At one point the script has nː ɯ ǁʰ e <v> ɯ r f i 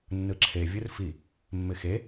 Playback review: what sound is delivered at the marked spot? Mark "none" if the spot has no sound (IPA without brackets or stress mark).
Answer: vʲ